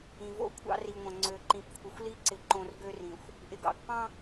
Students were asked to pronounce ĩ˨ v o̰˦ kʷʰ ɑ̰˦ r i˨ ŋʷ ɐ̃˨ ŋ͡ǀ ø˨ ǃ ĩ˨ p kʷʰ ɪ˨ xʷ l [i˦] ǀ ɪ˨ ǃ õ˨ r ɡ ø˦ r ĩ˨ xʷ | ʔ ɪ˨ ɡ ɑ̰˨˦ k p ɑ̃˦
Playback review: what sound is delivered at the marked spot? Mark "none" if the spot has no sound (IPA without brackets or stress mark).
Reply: i˦